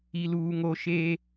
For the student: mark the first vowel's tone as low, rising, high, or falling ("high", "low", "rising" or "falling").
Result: high